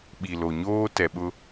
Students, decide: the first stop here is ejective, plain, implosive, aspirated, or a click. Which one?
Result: implosive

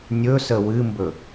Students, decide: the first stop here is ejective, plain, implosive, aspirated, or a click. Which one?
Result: plain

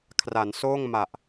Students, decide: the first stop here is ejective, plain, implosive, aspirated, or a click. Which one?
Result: aspirated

